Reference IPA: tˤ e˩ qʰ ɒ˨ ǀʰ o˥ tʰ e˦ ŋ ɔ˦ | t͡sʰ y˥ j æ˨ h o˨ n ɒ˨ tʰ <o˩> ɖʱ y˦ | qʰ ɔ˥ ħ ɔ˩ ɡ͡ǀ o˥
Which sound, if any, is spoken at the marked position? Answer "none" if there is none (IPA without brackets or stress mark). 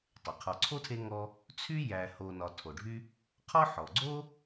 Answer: o˩